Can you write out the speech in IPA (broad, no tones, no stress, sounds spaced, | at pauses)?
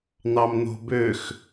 n̪ ɑ m n̪ o̤ b ø x